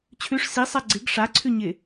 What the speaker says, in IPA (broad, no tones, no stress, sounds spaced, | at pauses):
t͡ɕʰ ʉ ʂ s i sˤ a ɡ͡ǀ ɪ ɡ ʂ a ǀʰ ʉ ɲ ɪ